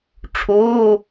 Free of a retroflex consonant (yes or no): no